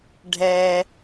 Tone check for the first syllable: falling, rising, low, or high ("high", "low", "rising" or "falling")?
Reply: low